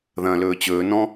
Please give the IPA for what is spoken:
ð ɐ̃ː l ɵː t͡ɕ ɵː n ɔ̃

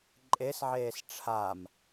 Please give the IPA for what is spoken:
ǃʼ e s ʕ eː s ʈ͡ʂʰ a m

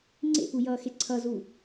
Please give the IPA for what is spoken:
ŋ͡ǀ ḛ p u j ʌː x e ǀʰ ʌ z u

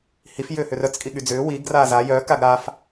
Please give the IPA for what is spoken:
h i f j ʏː h ʏ r œ t͡s kʼ i ɠ y d͡z ʏː w i ɡ r aː z a j œ k a ɡ ɾ a f

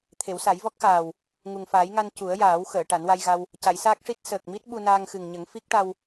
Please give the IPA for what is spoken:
t̪ʰ e˨˩˦ w s a˨˩˦ j v ɔ˦˥ k̚ x aː˨˩ w | ŋ u˨˩ ŋ f aː˨˩˦ j ŋ a˧ n c u˨˩˦ ə̯ j aː˨˩˦ w x əː˨˩˨ ʈ a˨˩˦ n w a˧ j ɣ a˧ w | c a˨˩˦ j s aː˦˥ k̚ ʂ i˦˥ t̚ s əː˨˩ k̚ m i˦˥ t̚ ɓ u˧ n aː˧ ŋ x ɨ˨˩ ŋ ɲ ə˨˩˦ ŋ f i˦˥ k̚ ʈ a˧ w

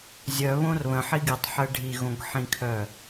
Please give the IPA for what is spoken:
zʲ œ β õ r β ə̃ ħ i ɡ i tˤ ħ ɜ ɖʱ i ɣ õ ɡ ħ ĩ kʰ œ

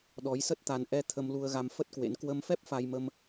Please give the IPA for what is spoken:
ɗ ɔ˨˦ j s ə˦˥ t̚ t̪ a˧ n ʔ ɛ˧ t̪ʰ ə˧ m l u˧ ə̯ ɣ a˧ m f ə˦˥ t̚ k w ḛ˧˥ n k w ə˧ m f ɛ˦˥ p̚ f a˧ j m ə˧ m

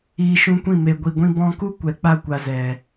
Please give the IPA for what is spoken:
iː˧ ʃ ũ˦ kʷ ĩ˦˨ m e˨ ɡʷ i˨ ɡʷ ĩ˧ b ɔ̃˧ k u˦ kʷ ɛ˨ k͡p a˧ kʷ a˨ z ɛ˨

